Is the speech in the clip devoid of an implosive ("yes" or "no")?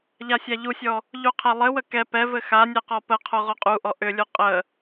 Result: yes